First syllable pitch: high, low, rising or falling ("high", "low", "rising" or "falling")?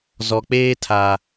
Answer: low